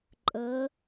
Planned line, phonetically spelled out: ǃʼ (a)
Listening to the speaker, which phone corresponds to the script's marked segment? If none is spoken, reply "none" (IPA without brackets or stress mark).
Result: ə